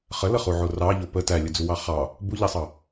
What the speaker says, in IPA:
χələχuʕo rɑʎo pə tælʲəd͡zuwɑ χɑ | buʎæsˤɑ

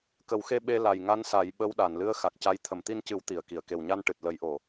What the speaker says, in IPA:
kə˨˩˦wxe˧ ɓe˧ la˨˩jŋa˧˥nsa˨˩˦j ɓə˧˥wɗa˨˩˨nlɨ˧˥ə̯ xa˨˩k̚ca˧˥j t̪ʰə˨˩˨mt̪i˧ncɨ˨˩˦w t̪i˨˩˨ə̯ki˨˩˨ə̯ ke˨˩wɲa˧nʈɨ˨˩t̚ lə˨˩˦jʔo˨˩˨

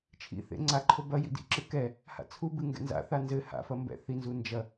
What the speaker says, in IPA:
t͡ʃʰḭθḛ ŋ͡ǀaǃʰo bɐ jḭdḭǁɨ kɛ | ha̰t͡sʰubɨ ŋɡɛ̰nza̰θa nzɘ ha̰fɐ mbɛ̰θinzu nd͡ʒɐ

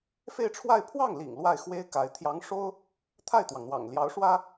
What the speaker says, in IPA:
fe˥˧ɪ̯ʈ͡ʂʰwa˥˧ɪ̯ pʰwɑ˥˩ŋlḭ˨˩ŋ lwa˥˩ɪ̯xwe˥ɪ̯ka˧˥ɪ̯ t̪ʰjɑ˧˥ŋʂo˥ʊ̯ | t̪ʰa˥˩ɪ̯t̪wɑ˩ŋn̪wɑ̰˨˩ŋ ljɑ˧˥ʊ̯ʂwä˥

